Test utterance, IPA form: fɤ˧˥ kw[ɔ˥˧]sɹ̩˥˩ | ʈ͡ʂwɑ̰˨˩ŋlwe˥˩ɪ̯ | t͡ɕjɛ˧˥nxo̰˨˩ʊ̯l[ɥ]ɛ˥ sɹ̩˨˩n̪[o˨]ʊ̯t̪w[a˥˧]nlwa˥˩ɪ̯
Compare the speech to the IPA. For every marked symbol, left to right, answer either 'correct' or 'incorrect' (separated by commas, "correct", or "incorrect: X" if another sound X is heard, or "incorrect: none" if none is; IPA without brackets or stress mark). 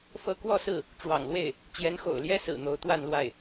correct, incorrect: j, incorrect: o˧˥, correct